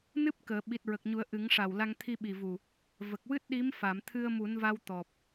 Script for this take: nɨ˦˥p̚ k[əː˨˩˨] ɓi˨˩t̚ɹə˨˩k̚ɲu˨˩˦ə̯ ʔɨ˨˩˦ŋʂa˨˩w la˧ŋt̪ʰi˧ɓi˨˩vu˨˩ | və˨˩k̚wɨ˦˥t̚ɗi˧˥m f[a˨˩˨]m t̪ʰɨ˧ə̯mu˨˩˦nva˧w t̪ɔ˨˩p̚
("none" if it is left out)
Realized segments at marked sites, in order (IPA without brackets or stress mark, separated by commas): əː˨˩˨, a˨˩˨